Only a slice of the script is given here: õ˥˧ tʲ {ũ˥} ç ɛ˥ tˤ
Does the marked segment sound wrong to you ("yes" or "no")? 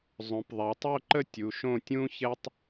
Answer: no